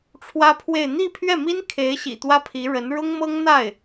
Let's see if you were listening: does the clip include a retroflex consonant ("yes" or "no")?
yes